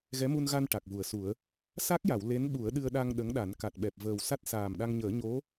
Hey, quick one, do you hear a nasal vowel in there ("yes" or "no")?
no